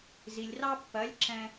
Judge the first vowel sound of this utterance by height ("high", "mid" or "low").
high